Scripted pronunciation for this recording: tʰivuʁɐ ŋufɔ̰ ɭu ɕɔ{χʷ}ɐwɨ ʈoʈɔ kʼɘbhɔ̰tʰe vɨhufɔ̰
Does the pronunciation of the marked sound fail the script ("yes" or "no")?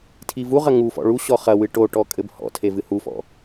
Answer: yes